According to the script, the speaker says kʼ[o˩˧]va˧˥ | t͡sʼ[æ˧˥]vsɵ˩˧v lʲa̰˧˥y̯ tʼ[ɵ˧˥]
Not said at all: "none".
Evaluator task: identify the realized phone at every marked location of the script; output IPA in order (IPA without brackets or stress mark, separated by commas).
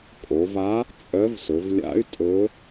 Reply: o˩˧, œ˧˥, ɵ˧˥